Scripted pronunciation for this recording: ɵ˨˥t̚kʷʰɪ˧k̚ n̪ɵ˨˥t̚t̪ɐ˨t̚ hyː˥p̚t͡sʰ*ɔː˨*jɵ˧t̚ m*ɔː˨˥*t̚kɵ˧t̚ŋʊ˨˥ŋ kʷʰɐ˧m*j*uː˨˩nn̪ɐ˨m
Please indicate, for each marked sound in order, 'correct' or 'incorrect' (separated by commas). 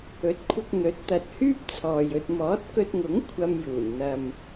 correct, correct, correct